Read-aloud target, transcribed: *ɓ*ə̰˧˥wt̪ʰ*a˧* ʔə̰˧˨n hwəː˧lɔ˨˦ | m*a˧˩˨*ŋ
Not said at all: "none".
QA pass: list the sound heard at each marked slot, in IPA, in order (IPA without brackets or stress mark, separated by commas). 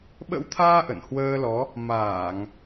ɓ, aː˧, aː˧˩˨